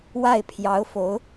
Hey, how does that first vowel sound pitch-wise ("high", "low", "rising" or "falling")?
falling